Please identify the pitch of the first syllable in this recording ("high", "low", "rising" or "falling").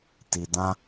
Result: low